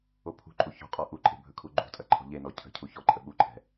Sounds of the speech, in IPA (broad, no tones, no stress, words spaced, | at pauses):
opʰṳǃʼu çɔ̤qʼɔ ʔuǃʼe̤ bʱɵkʰuɡ͡ǃṳtʼɐ ǃʰɔ̤ʎenɔ cʰə̤ cʰuçɔǃʼə ɓuǃʰɛ̤